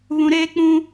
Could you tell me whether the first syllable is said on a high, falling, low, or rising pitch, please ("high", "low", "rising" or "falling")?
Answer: high